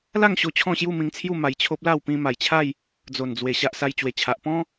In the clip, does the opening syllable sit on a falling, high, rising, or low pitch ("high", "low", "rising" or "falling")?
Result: falling